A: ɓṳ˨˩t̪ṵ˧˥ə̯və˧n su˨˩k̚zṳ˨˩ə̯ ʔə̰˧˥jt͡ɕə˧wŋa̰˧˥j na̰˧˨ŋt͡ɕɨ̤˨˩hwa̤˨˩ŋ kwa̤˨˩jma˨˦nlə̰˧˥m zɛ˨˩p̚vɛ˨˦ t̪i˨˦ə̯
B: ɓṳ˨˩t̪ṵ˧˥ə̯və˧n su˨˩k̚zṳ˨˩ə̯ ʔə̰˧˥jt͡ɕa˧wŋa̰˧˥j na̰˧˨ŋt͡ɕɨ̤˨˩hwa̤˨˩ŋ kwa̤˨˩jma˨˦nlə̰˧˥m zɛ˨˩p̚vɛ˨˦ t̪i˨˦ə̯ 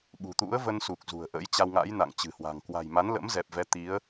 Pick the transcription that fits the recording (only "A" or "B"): B